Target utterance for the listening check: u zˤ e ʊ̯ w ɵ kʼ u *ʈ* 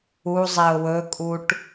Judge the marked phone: correct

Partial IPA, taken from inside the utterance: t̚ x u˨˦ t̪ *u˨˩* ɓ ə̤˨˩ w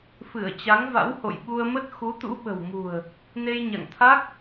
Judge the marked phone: incorrect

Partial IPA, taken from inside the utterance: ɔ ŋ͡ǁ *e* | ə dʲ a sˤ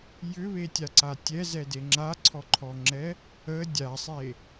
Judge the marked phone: incorrect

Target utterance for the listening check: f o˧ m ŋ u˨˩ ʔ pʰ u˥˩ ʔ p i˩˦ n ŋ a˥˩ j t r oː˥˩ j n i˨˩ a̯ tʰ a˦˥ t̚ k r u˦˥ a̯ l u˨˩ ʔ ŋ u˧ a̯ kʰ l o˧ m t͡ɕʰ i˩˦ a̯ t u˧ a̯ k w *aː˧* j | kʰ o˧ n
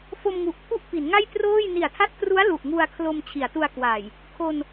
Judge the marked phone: incorrect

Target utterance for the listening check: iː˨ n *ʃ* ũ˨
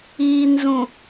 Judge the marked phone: incorrect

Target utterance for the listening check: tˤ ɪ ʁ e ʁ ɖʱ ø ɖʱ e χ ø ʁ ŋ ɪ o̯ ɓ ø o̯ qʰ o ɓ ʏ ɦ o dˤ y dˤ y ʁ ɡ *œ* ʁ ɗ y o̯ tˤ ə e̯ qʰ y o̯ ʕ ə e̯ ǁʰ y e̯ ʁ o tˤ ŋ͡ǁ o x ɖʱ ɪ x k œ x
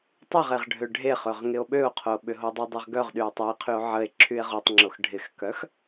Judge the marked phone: correct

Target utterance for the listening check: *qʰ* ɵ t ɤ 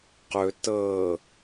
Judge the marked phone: incorrect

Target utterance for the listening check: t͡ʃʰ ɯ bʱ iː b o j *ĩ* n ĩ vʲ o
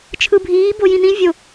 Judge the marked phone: correct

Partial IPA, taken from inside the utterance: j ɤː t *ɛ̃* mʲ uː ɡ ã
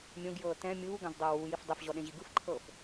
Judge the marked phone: correct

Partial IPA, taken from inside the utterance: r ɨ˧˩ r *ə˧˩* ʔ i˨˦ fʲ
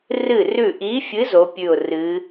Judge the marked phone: incorrect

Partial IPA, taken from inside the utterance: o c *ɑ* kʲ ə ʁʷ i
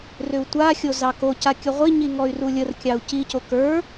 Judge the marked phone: incorrect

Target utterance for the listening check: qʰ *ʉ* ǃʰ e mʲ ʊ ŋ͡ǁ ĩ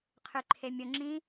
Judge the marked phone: correct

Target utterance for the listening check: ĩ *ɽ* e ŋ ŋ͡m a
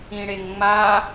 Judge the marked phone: correct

